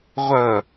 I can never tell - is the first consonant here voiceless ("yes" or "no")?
no